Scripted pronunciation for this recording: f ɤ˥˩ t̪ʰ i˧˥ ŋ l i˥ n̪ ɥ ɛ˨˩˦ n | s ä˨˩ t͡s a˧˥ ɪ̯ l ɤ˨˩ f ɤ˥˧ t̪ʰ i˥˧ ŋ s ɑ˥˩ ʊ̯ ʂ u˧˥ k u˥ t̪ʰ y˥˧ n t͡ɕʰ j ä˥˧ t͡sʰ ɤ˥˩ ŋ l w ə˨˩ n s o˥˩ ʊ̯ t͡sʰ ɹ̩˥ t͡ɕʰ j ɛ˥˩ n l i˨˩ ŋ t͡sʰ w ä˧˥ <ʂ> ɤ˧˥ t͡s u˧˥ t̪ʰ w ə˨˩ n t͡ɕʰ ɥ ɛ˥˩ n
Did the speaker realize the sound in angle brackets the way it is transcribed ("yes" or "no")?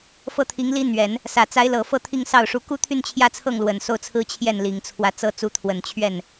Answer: no